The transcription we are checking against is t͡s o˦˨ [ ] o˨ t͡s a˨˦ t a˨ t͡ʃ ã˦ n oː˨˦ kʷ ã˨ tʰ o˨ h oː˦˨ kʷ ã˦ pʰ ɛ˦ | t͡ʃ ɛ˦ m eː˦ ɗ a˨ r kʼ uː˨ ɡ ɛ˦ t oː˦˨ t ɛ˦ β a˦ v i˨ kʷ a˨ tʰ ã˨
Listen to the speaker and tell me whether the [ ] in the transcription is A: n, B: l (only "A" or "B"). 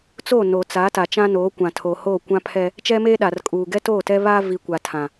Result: A